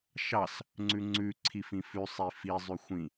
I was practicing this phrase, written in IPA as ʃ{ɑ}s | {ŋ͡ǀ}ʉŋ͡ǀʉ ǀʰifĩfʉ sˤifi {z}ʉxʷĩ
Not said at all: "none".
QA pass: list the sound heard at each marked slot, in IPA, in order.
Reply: ɑ, ŋ͡ǀ, zˤ

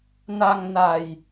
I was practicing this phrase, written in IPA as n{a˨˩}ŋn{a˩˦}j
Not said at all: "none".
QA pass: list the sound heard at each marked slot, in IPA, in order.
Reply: a˧, a˨˩

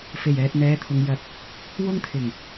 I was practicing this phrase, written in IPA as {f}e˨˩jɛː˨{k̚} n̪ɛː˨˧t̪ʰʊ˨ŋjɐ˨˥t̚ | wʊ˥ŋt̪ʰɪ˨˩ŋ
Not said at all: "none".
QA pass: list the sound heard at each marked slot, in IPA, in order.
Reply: f, t̚

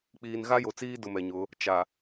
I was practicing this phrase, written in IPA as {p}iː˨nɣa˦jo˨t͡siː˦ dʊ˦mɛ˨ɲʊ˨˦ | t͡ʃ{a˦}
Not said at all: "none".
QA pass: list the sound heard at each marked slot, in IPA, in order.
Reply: k͡p, a˨

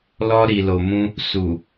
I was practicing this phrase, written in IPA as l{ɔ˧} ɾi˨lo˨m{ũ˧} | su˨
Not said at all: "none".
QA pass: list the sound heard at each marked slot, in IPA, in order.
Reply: ɔ˧, ũ˧

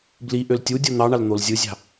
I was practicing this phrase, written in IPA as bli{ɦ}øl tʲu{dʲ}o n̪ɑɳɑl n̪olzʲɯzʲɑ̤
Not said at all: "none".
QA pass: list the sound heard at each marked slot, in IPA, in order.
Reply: ʔ, dʲ

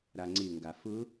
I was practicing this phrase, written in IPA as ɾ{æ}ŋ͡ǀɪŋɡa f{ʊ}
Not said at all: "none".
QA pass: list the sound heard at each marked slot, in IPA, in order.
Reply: a, ʊ

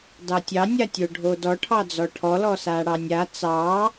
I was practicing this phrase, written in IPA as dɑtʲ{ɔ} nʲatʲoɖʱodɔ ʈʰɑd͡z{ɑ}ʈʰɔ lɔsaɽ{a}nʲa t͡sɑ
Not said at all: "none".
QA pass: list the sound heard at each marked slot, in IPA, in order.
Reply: ɑ, ɔ, ɑ

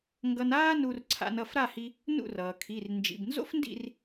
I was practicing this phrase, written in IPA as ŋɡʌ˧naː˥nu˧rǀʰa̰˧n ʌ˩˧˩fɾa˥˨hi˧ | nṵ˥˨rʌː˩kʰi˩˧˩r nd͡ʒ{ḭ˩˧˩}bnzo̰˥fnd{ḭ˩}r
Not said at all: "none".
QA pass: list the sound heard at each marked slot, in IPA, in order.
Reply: ḭ˩˧˩, ḭ˥˨

